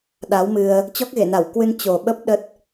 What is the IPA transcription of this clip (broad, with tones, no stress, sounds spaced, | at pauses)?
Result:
ɗ a˨˦ w m ɨ˧ ə̯ | t͡ɕ ɔ˦˥ k̚ ɣ e˧˩ n a˧˩ w k w ɨ˧ n t͡ɕ o˨˩ ɓ ə˦˥ p̚ ɗ ə˦˥ t̚